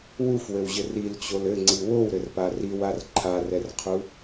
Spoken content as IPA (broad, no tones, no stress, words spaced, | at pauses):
wufwɘwʑɘr ilt͡ɕol ɘŋ͡ǀi wowɾɘrpa riwar ǃʰarɛrqʰu